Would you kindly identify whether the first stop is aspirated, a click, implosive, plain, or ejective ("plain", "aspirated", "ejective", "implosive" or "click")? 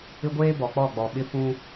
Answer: plain